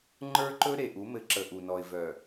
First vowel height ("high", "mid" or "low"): mid